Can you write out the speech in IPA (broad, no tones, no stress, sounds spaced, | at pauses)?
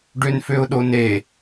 ɖ ø n f ø ʊ̯ ɗ o n e